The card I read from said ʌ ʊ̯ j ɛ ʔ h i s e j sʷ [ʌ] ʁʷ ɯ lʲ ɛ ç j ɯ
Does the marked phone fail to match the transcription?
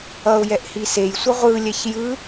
no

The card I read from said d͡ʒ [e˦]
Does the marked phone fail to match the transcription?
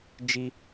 yes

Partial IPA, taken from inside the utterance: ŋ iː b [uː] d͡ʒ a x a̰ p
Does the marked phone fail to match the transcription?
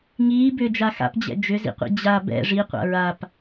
yes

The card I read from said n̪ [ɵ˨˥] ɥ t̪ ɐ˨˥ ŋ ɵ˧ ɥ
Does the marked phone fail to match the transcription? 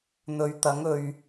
yes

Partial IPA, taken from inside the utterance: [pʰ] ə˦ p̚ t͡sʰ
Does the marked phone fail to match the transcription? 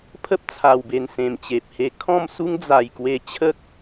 no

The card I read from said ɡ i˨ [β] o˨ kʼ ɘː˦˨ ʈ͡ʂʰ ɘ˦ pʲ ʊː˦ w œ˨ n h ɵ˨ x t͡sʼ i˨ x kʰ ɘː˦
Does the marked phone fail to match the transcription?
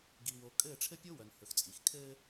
yes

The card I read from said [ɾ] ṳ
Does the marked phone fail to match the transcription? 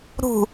no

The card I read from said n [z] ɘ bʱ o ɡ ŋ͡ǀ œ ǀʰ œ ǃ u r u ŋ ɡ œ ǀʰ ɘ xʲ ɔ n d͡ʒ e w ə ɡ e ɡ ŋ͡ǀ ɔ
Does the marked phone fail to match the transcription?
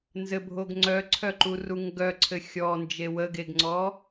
no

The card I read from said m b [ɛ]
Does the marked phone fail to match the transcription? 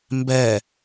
no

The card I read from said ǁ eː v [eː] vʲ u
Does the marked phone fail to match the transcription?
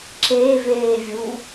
no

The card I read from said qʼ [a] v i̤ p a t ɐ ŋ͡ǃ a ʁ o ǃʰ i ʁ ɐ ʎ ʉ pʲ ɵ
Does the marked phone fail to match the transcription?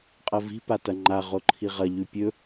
yes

